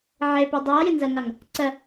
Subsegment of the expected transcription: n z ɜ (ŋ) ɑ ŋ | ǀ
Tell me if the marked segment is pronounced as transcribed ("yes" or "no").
yes